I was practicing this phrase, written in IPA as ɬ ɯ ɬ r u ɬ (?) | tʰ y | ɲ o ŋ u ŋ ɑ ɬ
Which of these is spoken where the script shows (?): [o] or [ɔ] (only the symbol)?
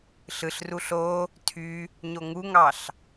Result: o